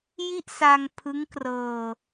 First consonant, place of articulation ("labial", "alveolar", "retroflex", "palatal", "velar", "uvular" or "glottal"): palatal